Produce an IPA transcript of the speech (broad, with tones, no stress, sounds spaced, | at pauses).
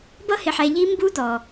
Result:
b ʌ˦ h ɪ˨ ħ ɛ˨ ʎ i˦ m b u˦ d̪ ɔ˨